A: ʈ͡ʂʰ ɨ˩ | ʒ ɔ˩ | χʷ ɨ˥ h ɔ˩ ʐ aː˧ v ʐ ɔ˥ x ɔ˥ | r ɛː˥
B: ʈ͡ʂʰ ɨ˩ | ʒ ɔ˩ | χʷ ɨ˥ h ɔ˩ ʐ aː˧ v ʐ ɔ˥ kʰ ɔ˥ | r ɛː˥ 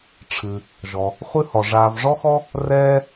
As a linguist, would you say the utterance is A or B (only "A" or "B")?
A